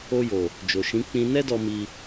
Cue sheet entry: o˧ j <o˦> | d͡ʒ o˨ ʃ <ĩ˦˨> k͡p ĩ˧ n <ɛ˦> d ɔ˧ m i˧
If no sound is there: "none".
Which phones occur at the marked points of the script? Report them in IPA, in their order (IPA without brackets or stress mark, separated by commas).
o˨, ĩ˨˦, ɛ˦